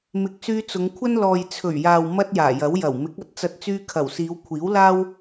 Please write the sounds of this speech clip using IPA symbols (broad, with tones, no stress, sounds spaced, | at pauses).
m ɪ˨˥ k̚ s yː˧ t͡s ʊ˨˧ ŋ kʷʰ ɐ˥ n l ɔː˨ j t͡sʰ ɵ˨˩ ɥ j aː˨ w m ɐ˥ t̚ j aː˨˩ j ɐ˨˥ w j ɐ˨˩ w m ɪ˨˥ k̚ ɐ˧ t̚ t͡s ɐ˧ t̚ t͡s yː˧ kʰ ɐ˨˩ w s iː˨˧ w kʷʰ iː˨˥ w l aː˥ w